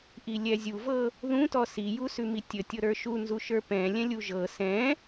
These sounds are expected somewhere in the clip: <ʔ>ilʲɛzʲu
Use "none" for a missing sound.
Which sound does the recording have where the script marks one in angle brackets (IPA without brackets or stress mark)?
ʔ